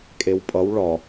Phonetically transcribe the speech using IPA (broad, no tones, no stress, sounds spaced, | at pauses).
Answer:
kʼ e w pʼ ʌ w ɭ ɒ